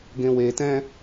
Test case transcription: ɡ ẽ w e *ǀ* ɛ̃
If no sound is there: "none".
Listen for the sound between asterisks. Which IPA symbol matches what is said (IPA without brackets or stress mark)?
t